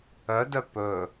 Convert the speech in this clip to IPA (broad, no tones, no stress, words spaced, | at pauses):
œdœ pɵ